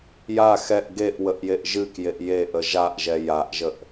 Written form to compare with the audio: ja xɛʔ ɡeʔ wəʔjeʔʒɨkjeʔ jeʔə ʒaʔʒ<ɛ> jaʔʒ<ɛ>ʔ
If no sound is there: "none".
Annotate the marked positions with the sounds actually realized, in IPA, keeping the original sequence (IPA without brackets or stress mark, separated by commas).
ɛ, ə